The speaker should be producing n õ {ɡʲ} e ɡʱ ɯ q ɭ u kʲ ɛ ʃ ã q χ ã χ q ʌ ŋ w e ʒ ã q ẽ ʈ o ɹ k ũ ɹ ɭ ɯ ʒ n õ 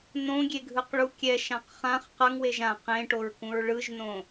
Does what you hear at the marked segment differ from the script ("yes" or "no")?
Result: no